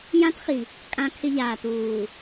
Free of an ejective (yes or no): no